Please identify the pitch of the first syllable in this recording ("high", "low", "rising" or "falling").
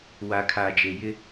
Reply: low